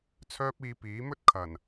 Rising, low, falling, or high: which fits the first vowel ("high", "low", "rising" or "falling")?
high